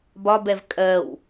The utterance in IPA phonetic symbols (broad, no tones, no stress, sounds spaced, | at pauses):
b ɒ b ɛ v kʼ ɜ w